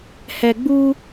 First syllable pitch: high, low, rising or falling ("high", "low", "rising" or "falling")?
low